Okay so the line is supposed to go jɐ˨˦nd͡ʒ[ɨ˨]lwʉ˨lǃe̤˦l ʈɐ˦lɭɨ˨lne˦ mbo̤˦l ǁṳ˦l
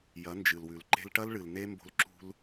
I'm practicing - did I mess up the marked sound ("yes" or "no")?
no